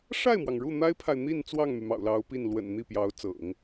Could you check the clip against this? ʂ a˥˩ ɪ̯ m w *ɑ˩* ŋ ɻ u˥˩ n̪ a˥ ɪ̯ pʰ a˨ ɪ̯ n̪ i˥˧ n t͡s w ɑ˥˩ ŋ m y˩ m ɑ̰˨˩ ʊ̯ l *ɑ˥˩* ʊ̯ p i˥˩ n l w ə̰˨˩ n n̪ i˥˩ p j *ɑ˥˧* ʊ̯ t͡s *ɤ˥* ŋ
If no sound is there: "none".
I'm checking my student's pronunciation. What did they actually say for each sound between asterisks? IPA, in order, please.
ɑ˩, ɑ˧˥, ɑ˧˥, ɤ̰˨˩˦

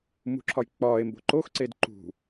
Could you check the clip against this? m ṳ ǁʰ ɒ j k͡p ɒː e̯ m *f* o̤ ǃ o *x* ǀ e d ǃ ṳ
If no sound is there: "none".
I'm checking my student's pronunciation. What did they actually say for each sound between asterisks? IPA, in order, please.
b, x

